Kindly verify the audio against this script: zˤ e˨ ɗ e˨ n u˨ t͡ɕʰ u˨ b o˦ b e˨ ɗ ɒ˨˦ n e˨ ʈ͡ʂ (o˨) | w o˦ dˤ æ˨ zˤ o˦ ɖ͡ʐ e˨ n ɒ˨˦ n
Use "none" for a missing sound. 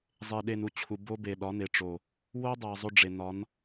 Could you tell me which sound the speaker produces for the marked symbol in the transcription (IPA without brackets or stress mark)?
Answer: o˨